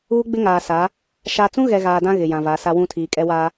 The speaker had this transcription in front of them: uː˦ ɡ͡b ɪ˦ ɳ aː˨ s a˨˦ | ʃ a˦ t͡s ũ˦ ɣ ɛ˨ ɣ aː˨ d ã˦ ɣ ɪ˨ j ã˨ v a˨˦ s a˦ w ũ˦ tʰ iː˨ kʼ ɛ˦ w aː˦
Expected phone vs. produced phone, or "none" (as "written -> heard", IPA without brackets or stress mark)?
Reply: ɳ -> ŋ